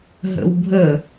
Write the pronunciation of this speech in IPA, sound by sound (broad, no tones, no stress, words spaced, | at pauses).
ɦə̰wbʱə